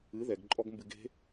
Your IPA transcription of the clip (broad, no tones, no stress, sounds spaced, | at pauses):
ɨ ð ɛ ɡ ǃʼ ɔ ɡ m b ɨ ɡ e̤